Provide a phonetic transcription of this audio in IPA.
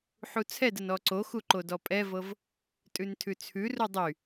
ħ u t͡sʰ ɛ d ə n ɔ ǀ o x u ǃ o d ɔ pʼ ɛ v ɤ v | tʼ ʉ n tʰ ʉ t͡sʰ ʉ r u dˤ y

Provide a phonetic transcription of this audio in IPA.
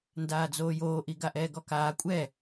n d aː d͡z oː j oː ʔ i ɡ a ʔ ɛː ɡ ɔ k aː kʷʼ ɛ

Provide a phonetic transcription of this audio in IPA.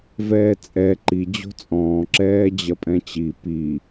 v ɛː t͡sʼ ɛ ǃ i d͡ʑ o̤ t͡sʼ ɔ̃ː ǁ ɛː d͡ʑ ɐ pʼ ɛ̃ t͡ɕ i p i

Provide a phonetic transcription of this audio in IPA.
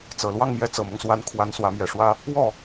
t͡s ɤ˨˩ l w ɑ˥˧ ŋ m j ɛ˥˩ t͡s ɤ˨˩ m ɤ˦ ŋ s w a˧˥ n kʰ w a˧˥ n s w ä˧˥ m j ɛ˨˩ ʂ w ä˥ | w ɔ˥˩

